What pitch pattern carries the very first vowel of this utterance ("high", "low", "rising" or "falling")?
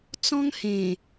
high